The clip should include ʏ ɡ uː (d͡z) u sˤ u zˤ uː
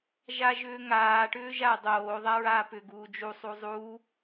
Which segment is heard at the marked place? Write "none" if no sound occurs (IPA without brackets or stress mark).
d͡ʒ